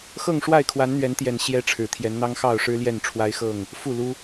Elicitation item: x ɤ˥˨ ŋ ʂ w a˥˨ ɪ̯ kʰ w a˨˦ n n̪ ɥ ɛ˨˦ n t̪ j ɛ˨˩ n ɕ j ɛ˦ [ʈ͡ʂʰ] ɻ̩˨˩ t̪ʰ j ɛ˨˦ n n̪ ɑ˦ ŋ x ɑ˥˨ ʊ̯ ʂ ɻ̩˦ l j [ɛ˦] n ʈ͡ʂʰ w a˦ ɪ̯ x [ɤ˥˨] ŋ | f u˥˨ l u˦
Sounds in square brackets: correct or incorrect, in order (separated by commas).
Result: correct, incorrect, correct